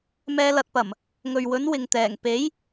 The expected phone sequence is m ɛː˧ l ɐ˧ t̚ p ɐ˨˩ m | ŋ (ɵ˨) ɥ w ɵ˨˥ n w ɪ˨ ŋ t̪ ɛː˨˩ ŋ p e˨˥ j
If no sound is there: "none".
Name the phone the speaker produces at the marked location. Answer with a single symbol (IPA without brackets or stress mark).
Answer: ɵ˨